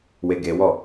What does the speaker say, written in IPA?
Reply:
weɡewɔ

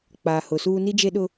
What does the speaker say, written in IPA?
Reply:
k͡paː˨hʊ˨suː˦ ni˦d͡ʒe˦ɗʊ˦

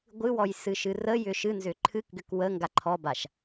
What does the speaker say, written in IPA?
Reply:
ɡʷɨwɔjsɨʃɨ rəjʏ ʃɨnzʏ ǃʰɨkɡʏk wəŋɡa ǃʰɔbaʃ

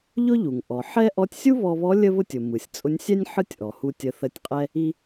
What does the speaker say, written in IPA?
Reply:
ʎʊ˥ʎu˩ŋ ʔɔ˩ħɛ˥ ʔɔ˧˥tʲsʲu˥βɔ˧βɔ˧˥ lʲə˥βʊ˥tʲʊ˩ mɯ˩sʲt͡sʼʊ˧˥nʲsʲɛ˥nʲ ħɯ˥tʲʔɔ˩hu˧ tʲə˧˥ θə˧˥tʲqʼɛ˥ | i˥

